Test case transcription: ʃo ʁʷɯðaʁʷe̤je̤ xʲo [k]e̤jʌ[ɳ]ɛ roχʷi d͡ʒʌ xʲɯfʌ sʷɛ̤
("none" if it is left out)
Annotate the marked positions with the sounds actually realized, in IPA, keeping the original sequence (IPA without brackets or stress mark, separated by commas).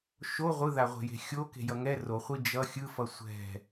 k, ŋ